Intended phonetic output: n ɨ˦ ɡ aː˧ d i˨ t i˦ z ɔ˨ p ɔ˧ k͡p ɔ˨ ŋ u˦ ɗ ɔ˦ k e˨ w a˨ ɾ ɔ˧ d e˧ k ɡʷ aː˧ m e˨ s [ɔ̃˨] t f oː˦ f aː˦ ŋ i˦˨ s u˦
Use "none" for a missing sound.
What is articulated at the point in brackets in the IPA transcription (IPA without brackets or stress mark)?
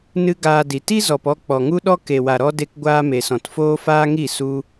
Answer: ɔ̃˨